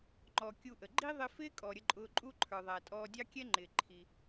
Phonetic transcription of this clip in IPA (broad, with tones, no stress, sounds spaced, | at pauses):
ŋ͡ǃ ɔ˩ kʲ u˧ ʔ ə˩ ɡ͡ǃ i˥ ðˤ ɪ˥ f ɪː˥ kʼ ɔ˩ ɾʲ ə˧ ǃʼ ʊː˧ ǃʼ u˥ ǃʰ ə˞˩ ðˤ æ˩ tʼ ɔː˧ dʲ ɑ˥ kʲ ɛ˥ ŋ͡ǃ ɪː˩ ǃʰ i˩